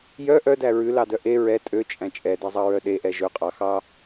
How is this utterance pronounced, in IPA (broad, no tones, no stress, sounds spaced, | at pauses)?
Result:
j œ ʔ œ d æ ɹ ʉ l ɑ d œ ʔ e ɹ ɛ tʼ ø t͡ʃʼ æ̃ t͡ʃʼ ɛ d ɛ zˤ ɑ ɹ œ ɗ e ʔ ɛ ʒ ɵ qʼ ɑ x ɑ